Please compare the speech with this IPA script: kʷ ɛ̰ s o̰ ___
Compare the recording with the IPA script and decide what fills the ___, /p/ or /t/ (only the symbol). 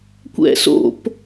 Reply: p